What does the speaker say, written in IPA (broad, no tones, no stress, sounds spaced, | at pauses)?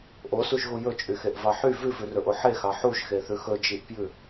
ʔ o s u ʒ ɣ u j ɵ t͡ʃʼ y x e ʔ v ɑ ħ y v ʉ v ʉ r ɵ ʔ o ħ e x ɑ ħ u ʒ x e θ ʉ x ɵ d͡ʒ i ʔ p j ʉ